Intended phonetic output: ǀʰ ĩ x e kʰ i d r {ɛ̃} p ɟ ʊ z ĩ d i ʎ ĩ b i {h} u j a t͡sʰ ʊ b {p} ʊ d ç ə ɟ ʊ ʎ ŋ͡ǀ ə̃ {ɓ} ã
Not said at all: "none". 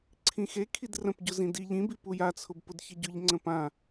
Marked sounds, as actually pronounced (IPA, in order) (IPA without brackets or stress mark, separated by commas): ə̃, p, p, p